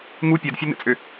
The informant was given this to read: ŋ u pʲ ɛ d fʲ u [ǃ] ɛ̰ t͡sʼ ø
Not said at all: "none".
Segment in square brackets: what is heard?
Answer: n̪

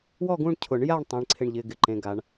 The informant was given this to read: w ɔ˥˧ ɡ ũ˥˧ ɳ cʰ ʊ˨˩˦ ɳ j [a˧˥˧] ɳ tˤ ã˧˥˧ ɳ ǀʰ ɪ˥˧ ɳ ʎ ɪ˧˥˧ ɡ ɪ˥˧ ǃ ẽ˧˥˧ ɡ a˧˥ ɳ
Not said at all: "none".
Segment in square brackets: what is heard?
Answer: a˥˧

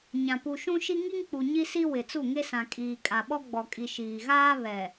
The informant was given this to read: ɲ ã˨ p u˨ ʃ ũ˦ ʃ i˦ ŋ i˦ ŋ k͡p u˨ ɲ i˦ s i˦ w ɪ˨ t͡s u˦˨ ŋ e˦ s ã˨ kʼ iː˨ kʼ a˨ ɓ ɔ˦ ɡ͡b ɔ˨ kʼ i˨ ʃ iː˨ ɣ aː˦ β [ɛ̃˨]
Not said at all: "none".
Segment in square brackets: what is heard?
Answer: ɛ˨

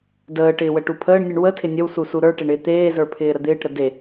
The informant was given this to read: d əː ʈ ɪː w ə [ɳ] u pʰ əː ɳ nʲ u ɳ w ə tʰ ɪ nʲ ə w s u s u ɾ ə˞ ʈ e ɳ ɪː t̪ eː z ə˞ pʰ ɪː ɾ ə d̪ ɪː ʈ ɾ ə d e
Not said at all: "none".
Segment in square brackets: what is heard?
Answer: ʈ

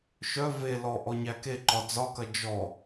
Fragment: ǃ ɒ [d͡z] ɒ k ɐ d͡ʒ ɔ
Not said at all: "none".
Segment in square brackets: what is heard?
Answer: d͡z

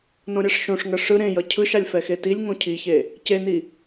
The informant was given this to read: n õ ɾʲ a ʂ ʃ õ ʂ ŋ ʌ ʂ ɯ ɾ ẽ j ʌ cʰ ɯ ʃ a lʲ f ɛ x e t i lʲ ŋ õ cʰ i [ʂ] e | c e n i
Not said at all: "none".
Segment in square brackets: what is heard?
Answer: ç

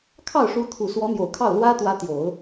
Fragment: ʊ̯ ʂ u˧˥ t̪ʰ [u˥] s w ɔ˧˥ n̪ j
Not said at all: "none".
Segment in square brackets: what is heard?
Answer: u˨˩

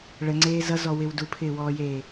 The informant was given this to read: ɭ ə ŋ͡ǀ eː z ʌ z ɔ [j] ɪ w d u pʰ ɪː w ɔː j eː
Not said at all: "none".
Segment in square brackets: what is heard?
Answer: w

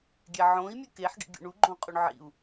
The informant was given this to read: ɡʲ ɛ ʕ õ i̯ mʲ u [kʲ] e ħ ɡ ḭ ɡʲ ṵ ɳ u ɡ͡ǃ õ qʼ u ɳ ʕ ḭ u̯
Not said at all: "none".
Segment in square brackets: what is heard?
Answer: k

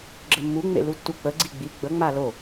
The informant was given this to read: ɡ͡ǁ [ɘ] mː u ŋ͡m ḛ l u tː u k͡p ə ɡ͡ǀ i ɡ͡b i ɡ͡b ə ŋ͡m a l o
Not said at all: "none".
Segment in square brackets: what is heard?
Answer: ɘ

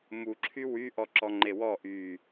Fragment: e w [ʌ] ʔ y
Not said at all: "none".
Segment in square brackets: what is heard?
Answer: ɔ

